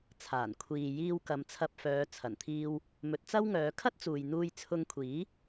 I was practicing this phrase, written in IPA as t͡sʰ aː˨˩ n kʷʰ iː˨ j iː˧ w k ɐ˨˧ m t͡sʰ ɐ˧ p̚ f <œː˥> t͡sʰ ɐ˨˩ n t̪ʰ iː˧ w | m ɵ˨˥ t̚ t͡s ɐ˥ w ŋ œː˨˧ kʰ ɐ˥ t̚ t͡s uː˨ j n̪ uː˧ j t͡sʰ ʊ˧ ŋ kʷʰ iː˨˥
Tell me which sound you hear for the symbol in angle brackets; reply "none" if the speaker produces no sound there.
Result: œː˨˧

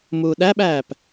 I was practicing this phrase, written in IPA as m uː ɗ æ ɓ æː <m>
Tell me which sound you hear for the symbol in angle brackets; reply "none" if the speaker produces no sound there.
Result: p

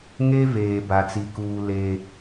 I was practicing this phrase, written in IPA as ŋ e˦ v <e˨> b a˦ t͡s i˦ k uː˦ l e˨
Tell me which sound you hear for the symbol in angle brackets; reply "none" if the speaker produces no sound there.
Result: eː˨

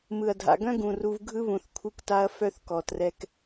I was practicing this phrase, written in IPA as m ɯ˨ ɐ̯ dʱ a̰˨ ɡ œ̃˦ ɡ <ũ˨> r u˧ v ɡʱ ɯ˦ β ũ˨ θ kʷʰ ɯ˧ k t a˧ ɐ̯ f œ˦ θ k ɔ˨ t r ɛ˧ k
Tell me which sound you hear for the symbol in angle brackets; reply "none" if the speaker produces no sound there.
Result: ũ˨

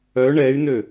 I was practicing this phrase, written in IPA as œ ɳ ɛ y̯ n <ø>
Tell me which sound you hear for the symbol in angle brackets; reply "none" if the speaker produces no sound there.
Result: ø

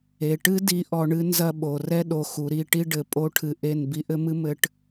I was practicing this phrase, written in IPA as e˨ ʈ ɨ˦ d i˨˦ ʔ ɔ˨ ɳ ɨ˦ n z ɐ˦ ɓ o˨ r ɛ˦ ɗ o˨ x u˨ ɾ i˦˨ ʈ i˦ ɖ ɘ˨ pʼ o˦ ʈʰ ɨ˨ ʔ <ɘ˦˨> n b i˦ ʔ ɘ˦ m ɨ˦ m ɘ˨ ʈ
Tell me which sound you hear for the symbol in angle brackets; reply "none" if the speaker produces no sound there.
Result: e˦˨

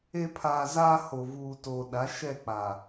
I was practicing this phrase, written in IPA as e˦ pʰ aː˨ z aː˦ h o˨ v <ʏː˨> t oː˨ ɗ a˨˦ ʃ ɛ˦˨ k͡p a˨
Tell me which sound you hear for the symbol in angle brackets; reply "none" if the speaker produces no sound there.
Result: uː˨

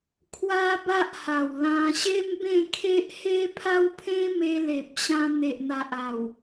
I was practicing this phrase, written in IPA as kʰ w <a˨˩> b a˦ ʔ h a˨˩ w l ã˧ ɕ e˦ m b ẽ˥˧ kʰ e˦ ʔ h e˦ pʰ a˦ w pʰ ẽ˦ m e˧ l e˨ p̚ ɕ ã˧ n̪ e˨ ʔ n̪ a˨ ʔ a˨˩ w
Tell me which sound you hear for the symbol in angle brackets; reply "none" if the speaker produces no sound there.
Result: a˦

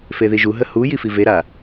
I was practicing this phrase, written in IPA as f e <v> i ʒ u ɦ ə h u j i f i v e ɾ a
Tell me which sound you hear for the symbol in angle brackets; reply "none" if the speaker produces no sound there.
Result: ð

